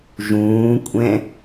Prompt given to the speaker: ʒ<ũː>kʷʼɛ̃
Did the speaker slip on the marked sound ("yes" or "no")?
no